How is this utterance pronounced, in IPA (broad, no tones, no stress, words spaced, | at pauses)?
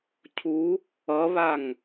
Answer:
cʰu | ʌβaŋ